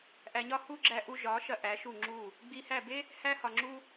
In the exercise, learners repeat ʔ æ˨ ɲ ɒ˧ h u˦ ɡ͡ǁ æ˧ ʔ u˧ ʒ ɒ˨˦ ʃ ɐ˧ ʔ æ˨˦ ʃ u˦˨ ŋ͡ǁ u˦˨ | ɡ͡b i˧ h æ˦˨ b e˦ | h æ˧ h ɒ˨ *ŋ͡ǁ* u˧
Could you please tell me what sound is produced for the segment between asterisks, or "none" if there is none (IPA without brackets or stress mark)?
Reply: ŋ͡ǁ